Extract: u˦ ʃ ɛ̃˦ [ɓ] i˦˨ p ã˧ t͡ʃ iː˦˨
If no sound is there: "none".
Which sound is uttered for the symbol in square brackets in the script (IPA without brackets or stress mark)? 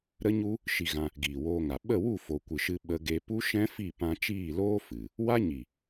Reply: f